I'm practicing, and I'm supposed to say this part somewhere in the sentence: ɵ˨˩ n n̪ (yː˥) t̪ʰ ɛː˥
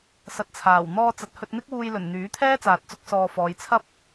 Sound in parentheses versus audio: incorrect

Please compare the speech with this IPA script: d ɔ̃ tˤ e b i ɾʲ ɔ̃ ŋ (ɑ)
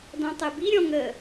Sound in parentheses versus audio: incorrect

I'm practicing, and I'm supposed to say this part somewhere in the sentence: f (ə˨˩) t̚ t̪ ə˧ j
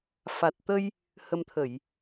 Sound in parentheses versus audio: incorrect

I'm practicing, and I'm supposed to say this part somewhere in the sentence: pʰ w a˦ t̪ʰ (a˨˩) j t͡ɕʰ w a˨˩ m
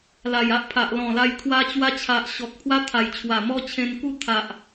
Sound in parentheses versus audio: correct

